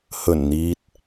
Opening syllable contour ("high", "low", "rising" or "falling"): low